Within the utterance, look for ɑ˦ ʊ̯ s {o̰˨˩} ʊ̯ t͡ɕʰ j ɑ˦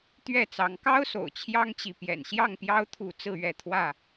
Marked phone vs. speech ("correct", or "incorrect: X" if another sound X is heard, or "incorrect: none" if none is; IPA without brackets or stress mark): correct